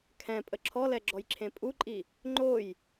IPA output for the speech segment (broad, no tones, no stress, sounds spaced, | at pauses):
kʰ ɛ̃ pʼ ə ǁʰ ɔ l ɛ ɡ͡ǁ ɔ j ǁʰ ẽ pʼ u ǃʼ i | ŋ͡ǃ o j